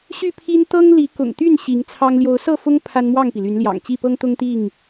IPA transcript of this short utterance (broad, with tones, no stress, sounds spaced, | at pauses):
ɕ y˥˨ pʰ i˦ n t̪ ɤ˦ ŋ l i˨˦ k ʊ̰˨˩ ŋ t̪ y˥˨ n ɕ i˨˦ ŋ t͡sʰ ɑ˦ ŋ l j o˨˦ ʊ̯ s ɤ˥˨ f ʊ˦ ŋ pʰ a˦ n m w ɑ˥˨ ŋ p i˩ l y˨˦ n l j ɑ̰˨˩ ŋ t͡ɕ i˥˨ p ɤ˦ ŋ t̪ ʊ˦ ŋ t̪ i˥˨ ŋ